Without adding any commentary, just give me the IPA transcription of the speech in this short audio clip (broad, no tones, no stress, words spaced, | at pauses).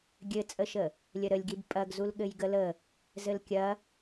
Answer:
ɡʲɘt͡sʼəʃə | lʲəɾəlʲɡib pʼɐɡzul ɠɘjɡələ | zɘlkʲɐ